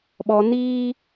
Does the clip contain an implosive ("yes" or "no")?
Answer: yes